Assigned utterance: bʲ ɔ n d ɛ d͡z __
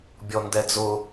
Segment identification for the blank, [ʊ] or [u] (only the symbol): ʊ